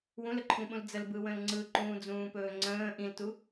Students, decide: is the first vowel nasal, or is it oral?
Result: nasal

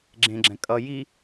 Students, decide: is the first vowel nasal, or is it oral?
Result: nasal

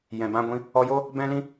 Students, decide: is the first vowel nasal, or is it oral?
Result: nasal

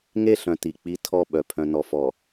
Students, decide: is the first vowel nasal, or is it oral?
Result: oral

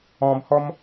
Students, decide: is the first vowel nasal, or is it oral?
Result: nasal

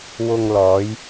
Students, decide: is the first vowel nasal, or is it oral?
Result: oral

